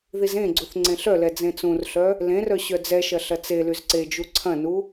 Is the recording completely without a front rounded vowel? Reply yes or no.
no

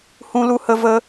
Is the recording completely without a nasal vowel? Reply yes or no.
no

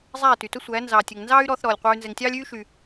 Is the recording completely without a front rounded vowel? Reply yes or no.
no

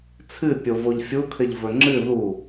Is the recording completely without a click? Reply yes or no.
no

